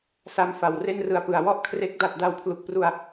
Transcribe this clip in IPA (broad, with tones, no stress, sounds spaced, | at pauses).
s a˧ m f a˨˩ w r e˥˩ n r ɯ˧ a̯ p ɯ˨˩ a̯ w ɔ˥˩ ʔ kʰ r e˦˥ k̚ d a˨˩ t̚ d a˧ w pʰ l u˨˩ k̚ p r u˧ a̯